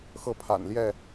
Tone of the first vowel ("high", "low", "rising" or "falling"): falling